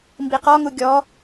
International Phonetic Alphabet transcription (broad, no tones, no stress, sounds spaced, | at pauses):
m b i q ɔ ŋ u ɡʲ ɔ